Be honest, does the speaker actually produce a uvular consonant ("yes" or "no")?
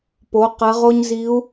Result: yes